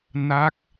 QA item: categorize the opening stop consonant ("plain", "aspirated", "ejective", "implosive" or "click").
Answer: plain